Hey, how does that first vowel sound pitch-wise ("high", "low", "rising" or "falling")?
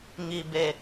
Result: low